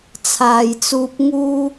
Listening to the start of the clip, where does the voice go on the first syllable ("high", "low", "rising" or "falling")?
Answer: low